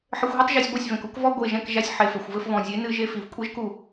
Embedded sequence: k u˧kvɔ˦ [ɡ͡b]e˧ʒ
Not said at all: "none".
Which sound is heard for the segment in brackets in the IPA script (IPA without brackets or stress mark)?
ɡʷ